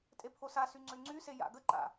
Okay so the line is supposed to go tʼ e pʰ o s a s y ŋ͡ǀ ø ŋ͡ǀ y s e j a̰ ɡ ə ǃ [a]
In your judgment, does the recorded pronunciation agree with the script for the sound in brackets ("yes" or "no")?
no